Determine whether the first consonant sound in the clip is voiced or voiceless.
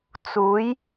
voiceless